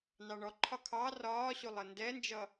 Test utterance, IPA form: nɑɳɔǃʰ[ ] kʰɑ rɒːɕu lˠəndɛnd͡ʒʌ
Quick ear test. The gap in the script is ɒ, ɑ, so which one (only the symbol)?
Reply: ɒ